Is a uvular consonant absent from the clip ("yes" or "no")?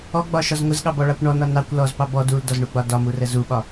yes